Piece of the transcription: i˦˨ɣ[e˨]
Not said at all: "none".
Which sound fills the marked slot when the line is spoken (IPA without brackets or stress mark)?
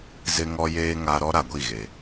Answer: e˨